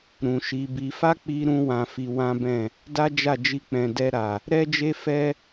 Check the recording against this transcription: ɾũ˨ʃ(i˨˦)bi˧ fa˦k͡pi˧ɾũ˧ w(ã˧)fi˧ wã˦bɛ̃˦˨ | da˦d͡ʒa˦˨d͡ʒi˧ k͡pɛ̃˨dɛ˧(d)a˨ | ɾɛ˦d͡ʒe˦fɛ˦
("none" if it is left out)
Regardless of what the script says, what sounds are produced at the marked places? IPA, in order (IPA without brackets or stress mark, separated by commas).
i˨˦, ã˧, ɾ